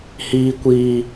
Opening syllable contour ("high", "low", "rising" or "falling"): high